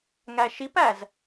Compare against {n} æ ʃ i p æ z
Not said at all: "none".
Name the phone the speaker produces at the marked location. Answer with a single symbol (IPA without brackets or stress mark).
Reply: ŋ